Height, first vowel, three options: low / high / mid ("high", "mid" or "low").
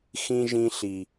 high